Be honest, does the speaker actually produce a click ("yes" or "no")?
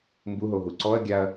yes